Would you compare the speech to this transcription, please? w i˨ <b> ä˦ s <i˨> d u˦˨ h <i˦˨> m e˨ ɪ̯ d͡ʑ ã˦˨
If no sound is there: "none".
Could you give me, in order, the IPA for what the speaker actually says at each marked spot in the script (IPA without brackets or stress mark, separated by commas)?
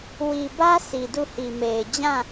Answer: b, i˨, i˨